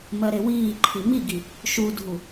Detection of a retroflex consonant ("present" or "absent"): absent